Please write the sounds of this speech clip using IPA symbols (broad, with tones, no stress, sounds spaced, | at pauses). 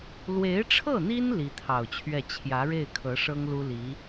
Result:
l w e˧˥ ɪ̯ ʈ͡ʂʰ ɤ˥˩ n̪ i˥ n l i˧˥ t̪ʰ ɑ˨˩ ʊ̯ t͡ɕʰ ɥ ɛ˥˩ t͡ɕʰ j ä˧˥ ɻ e˥˩ ɪ̯ kʰ ɤ˧˥ ʂ ɤ˥ ŋ l u˥ l i˧˥